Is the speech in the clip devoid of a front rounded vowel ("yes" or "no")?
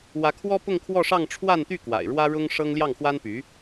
no